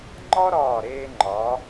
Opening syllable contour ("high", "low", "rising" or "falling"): high